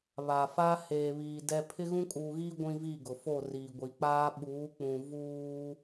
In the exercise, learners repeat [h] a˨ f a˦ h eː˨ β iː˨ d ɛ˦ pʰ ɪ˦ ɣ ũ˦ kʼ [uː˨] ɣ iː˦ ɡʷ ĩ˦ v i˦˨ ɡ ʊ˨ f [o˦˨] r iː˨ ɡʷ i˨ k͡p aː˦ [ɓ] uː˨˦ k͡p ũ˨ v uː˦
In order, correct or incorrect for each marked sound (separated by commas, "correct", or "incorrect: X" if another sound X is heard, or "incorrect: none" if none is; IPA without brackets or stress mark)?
incorrect: β, correct, correct, correct